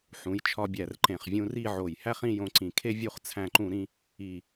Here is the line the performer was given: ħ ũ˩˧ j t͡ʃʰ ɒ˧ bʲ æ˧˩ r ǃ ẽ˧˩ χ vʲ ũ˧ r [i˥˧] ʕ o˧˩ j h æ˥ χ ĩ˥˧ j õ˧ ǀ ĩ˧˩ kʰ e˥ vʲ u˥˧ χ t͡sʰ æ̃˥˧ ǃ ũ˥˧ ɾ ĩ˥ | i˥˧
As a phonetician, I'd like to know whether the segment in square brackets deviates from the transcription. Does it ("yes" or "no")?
no